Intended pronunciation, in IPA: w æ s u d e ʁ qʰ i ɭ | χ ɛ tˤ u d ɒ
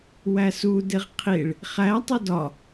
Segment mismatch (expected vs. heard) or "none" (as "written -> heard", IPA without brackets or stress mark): ɛ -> æ